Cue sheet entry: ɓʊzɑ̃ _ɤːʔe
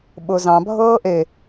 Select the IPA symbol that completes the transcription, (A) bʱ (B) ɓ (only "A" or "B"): A